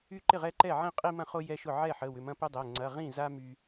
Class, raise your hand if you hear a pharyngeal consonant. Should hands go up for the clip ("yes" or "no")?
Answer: yes